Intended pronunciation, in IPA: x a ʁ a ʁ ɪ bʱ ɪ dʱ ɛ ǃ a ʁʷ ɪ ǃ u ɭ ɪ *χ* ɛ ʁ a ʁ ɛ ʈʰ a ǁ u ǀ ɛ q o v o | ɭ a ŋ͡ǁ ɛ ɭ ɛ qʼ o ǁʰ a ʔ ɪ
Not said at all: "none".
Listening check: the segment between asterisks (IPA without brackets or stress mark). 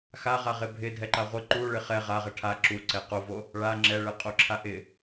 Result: χ